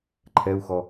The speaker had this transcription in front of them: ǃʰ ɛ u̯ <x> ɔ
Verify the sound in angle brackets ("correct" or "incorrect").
correct